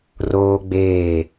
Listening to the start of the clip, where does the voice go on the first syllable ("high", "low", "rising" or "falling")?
high